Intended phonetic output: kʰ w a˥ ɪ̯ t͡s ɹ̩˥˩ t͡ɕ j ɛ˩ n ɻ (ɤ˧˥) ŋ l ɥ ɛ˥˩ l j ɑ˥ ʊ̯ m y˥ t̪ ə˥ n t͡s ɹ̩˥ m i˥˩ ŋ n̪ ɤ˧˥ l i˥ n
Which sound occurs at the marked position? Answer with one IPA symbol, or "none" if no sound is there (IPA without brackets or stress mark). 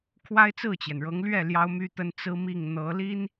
ɤ˧˥